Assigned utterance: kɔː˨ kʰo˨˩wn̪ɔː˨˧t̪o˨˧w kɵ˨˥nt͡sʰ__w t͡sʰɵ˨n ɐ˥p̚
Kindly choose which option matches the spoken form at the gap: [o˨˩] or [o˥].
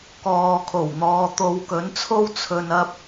o˥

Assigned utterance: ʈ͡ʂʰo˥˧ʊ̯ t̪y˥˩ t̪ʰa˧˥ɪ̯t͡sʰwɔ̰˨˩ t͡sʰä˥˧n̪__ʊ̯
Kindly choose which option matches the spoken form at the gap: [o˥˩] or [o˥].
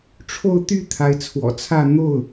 o˥˩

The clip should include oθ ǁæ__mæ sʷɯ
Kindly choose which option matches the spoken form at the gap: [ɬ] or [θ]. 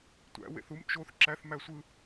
θ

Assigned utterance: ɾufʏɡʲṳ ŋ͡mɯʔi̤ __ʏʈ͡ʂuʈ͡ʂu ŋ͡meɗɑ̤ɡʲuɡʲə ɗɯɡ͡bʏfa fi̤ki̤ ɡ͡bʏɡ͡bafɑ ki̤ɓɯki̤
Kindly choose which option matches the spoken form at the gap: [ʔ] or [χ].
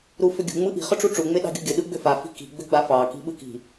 χ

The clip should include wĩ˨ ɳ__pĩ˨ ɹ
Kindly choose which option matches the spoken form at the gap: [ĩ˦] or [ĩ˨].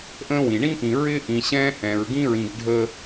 ĩ˦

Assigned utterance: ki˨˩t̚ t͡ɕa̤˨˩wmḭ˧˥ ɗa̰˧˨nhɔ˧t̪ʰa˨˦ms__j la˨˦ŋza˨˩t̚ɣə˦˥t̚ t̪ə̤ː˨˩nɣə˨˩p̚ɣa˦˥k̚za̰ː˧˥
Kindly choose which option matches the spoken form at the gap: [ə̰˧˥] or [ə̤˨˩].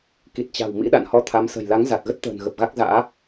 ə̤˨˩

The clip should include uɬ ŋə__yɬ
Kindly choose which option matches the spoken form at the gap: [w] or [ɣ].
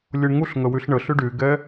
w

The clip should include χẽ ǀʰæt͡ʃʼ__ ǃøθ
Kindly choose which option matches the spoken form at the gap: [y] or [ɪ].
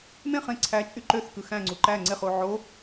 y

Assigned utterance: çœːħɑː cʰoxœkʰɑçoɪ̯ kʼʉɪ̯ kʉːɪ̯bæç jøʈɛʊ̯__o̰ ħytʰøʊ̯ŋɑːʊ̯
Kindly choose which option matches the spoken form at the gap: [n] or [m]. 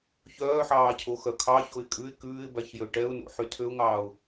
n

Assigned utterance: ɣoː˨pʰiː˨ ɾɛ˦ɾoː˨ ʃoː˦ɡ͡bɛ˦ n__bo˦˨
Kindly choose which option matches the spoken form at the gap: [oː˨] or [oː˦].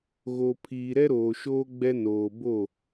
oː˨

